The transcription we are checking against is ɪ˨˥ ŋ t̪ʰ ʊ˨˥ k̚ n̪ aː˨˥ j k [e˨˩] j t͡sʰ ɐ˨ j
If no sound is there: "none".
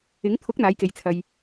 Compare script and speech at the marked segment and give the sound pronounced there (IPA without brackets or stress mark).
e˨˧